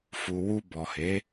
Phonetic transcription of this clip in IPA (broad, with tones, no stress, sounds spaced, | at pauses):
f u˨ w u˧ b ɔ˨ h e˨˦